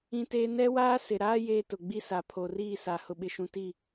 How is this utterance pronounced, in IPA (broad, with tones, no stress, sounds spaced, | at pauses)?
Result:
ĩ˦ t eː˦ n ɛ˦ w aː˦ s ɪ˨ ɾ aː˦ j eː˦ t ʊ˨ ɡ͡b i˦ s a˨ pʰ o˨ r iː˦˨ s a˨ h ʊ˨ ɓ ɪ˨ ʃ ũ˨ t i˦˨